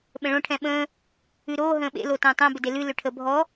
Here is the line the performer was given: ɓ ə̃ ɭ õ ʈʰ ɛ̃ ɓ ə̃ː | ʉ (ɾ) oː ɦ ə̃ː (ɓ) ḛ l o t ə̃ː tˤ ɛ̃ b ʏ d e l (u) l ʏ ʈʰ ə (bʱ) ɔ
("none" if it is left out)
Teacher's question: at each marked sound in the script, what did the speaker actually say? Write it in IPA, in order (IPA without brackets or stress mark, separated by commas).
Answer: ɾ, ɓ, ʉ, bʱ